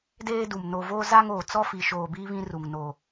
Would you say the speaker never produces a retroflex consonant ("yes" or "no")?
yes